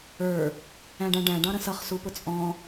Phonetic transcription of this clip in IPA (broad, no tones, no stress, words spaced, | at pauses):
ə˞ | æ̃ɖæ̃ɖæ̃ ɖɑ̃ɾə̃sʌχ supʊt͡sʼɔ̃